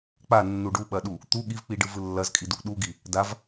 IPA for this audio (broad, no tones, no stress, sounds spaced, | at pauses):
k͡p a nː u ɖ u ɓ ɐ ɗ u | t̪ u ɠ i v k͡p i ɖ ɯ v ɯ lː ɐ z kʼ i d u ʔ ɗ u ɡ i | d a v